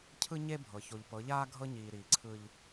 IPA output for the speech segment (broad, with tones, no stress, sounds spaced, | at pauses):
cʰ ɯ˦ ɲ e˦ bʱ ɤ˨ ç o˨ ʎ p ɤ˨˦ ʎ aː˦ ɡʱ ɤ˦ ɲ iː˨ ɾ iː˨ ǀʰ ɯ˦ ʎ